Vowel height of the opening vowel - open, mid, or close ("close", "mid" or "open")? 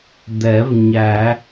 mid